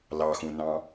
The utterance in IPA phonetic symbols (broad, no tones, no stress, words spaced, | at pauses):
lɑxũnɑ̃